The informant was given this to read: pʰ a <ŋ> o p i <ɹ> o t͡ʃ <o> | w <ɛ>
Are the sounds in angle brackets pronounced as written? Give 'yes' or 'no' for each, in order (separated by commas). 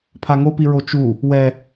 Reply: yes, yes, no, yes